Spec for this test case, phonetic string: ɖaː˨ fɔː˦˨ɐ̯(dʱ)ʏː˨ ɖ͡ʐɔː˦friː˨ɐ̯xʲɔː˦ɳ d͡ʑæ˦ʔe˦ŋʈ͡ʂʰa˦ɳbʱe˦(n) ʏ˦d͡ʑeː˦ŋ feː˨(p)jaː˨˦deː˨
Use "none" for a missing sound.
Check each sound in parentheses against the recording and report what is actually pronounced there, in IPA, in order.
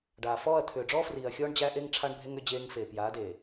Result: t̪ʰ, ŋ, p

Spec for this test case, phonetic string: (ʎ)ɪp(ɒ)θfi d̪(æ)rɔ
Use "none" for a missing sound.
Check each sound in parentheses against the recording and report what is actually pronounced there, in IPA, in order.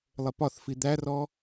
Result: lˠ, ɒ, æ

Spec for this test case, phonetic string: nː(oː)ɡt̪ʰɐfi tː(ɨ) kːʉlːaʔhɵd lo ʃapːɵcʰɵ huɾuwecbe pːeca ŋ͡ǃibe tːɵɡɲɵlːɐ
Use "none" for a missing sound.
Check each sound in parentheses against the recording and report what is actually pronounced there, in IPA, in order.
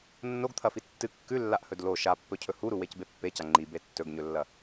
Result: o, ɨ

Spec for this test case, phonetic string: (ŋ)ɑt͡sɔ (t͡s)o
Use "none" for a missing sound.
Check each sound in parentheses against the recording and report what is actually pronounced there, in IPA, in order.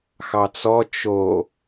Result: x, t͡ʃ

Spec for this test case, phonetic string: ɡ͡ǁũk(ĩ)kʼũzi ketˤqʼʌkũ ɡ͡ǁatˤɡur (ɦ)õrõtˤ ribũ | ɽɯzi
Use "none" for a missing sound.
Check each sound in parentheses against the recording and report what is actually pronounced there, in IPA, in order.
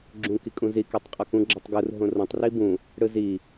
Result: i, ɦ

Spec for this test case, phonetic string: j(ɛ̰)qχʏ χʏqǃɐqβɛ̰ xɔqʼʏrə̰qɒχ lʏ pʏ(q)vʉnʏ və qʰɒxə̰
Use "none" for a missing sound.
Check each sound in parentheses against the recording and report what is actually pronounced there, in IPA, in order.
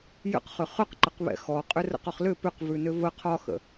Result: ə̰, q

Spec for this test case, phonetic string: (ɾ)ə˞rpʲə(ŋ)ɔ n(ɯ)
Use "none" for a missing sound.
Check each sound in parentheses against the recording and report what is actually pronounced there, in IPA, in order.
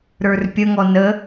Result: ɾ, ŋ, ə

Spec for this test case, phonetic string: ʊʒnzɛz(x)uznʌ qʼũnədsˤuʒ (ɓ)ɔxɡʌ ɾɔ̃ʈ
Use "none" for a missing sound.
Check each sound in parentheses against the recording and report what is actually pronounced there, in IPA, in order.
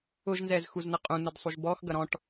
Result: x, b

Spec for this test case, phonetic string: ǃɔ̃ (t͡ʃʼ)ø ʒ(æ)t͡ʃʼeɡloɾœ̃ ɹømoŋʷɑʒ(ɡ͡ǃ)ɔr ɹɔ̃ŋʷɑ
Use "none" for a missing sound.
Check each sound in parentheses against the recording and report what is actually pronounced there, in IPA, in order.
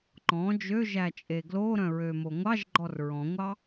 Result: d͡ʒ, æ, ɡ͡ǃ

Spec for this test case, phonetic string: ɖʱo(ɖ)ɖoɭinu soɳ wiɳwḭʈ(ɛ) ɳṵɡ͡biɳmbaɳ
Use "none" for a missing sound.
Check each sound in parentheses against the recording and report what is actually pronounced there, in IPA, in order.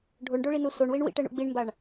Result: ɳ, ɛ

